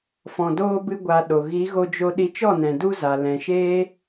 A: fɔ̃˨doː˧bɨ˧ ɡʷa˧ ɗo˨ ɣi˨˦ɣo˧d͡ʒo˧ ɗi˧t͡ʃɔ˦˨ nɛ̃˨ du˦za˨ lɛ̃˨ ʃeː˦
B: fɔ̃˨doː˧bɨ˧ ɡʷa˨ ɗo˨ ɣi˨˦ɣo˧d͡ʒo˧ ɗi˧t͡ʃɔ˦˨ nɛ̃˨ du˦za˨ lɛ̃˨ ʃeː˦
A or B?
A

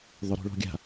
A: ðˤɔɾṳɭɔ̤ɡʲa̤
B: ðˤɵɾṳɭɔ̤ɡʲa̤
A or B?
B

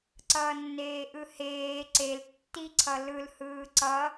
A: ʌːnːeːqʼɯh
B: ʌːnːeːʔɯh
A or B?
B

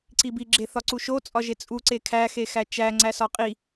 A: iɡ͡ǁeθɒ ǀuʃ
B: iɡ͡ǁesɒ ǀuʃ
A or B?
A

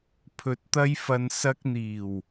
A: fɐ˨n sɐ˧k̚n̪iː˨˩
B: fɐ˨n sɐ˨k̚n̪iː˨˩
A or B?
A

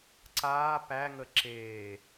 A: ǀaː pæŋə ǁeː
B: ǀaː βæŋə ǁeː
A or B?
A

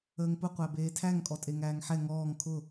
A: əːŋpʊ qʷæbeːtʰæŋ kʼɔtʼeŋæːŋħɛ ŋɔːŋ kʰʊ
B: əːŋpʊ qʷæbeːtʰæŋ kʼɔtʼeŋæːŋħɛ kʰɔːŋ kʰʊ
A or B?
A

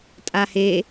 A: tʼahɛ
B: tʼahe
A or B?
B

